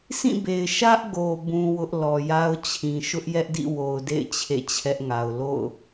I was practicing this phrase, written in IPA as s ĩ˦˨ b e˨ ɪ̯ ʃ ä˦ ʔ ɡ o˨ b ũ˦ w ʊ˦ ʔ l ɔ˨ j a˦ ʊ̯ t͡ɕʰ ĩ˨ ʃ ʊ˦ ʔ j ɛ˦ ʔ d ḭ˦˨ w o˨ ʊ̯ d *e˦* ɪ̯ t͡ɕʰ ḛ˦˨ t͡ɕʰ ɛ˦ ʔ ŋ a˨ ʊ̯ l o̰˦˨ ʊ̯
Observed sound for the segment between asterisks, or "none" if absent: ḛ˦˨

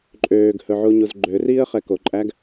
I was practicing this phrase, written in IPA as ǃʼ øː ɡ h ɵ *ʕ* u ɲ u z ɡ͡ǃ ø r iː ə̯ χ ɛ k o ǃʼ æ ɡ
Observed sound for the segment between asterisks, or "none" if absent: ʕ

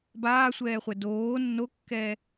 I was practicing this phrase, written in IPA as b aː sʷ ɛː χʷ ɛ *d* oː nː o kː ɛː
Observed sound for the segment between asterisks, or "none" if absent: d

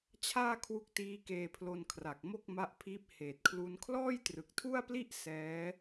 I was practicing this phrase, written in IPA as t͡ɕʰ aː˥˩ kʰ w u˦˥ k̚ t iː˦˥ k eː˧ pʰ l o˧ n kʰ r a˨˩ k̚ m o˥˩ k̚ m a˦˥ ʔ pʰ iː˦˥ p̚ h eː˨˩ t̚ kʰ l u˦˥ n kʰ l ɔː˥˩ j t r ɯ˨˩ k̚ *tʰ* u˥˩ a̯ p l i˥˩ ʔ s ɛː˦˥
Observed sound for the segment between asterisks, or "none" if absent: tʰ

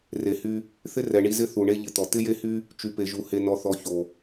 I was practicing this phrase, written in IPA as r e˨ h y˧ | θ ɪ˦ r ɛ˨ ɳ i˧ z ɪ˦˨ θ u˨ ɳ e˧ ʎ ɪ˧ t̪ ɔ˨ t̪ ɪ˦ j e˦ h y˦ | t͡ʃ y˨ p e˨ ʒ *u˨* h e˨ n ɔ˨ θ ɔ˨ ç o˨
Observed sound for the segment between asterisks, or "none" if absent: u˨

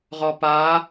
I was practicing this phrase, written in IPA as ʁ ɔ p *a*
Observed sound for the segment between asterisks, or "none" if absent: a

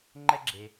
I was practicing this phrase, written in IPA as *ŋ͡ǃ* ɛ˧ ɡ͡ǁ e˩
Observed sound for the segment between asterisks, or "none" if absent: ŋ͡ǃ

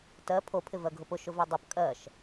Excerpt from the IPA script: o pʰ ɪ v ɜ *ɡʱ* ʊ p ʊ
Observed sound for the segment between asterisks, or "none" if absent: ɡʱ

